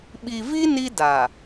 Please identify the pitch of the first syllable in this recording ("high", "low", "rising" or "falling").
low